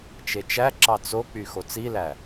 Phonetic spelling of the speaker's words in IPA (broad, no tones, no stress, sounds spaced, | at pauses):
t͡ʃ e t͡ʃ æ ǁ ɑ t͡s o k͡p y x o t͡s i l æ